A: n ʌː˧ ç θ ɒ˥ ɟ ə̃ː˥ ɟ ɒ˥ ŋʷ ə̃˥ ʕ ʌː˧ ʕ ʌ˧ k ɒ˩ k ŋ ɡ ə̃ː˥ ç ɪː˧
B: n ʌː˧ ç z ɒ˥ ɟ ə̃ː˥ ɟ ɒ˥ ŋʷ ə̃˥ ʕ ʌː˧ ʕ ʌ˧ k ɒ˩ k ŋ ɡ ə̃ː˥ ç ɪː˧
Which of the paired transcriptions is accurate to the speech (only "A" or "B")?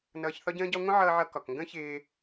A